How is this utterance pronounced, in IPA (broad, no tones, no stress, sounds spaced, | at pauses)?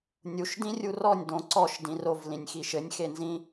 nʲ u ʃ d ĩ rʲ u r ɔ nʲ d õ ǀ ɔ ʃ d ĩ r o v l ĩ nʲ x i ʃ ɘ nʲ x e n z ĩ